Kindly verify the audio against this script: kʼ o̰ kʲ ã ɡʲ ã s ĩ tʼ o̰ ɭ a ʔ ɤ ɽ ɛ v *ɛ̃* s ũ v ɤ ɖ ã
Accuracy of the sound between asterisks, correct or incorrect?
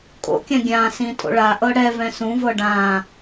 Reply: correct